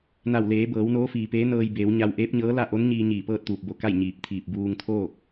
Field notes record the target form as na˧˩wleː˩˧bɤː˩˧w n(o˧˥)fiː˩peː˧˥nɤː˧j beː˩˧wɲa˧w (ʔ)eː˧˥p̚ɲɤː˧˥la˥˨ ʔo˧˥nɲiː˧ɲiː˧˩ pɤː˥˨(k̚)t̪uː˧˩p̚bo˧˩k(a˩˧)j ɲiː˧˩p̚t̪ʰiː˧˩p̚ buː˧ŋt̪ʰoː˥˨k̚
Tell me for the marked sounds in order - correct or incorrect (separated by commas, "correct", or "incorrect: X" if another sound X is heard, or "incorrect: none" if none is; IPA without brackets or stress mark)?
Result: incorrect: oː˧˥, correct, incorrect: t̚, incorrect: a˥˨